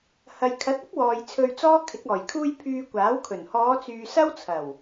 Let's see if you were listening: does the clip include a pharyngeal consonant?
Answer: no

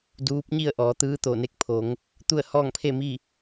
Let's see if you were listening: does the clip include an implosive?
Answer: no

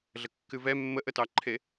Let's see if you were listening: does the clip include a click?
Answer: yes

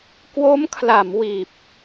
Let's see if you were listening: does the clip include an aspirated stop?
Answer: yes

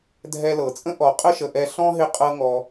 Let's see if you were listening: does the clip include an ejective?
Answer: yes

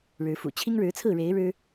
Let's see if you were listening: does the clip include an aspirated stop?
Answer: yes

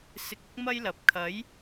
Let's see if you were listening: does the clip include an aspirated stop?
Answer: yes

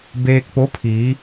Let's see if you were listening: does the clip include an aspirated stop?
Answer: yes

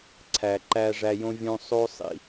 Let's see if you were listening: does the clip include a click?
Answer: yes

